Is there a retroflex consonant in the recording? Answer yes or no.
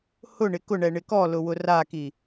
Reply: yes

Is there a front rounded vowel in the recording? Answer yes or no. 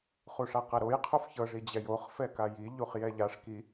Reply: no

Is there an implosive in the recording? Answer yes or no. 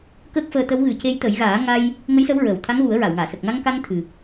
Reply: no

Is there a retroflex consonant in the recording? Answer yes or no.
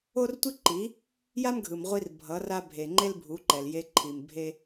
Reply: no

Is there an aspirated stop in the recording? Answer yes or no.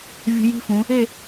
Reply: no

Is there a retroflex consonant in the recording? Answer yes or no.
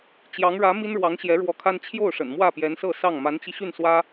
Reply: yes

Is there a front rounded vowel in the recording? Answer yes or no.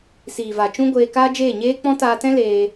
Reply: no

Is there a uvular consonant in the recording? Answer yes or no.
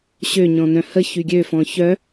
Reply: no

